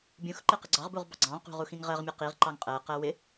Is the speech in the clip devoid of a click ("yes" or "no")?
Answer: no